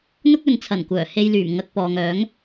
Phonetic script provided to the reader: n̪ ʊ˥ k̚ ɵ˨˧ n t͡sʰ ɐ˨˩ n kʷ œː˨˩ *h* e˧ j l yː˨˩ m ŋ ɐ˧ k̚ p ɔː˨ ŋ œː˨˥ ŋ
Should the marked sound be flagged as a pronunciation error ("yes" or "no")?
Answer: no